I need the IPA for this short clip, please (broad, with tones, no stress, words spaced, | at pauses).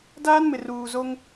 daː˦nmɪ˨ ruː˨zo˦ŋ